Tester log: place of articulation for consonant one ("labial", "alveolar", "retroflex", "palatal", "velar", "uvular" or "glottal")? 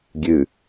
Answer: velar